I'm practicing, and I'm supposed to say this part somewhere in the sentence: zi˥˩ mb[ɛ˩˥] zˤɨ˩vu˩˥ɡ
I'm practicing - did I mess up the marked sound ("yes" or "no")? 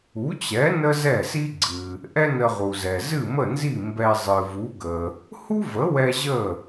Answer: yes